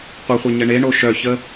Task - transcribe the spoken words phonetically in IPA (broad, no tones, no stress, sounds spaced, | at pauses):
qʷ ə χʷ œ ɲ ə ɳ e ɳ o ʃ œ ç ə